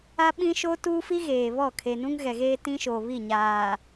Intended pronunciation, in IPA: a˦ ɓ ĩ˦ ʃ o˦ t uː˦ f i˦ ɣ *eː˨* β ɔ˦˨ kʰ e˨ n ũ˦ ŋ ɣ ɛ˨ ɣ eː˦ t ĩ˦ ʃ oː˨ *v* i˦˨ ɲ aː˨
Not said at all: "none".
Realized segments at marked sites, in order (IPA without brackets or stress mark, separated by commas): eː˨, β